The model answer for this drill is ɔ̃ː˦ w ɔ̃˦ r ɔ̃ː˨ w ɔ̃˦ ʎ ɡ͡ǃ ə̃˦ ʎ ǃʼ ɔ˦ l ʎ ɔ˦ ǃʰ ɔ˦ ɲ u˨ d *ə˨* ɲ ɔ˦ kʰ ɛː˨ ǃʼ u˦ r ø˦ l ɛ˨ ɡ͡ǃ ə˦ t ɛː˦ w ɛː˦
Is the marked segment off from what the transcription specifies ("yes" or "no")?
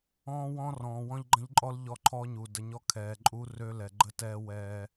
no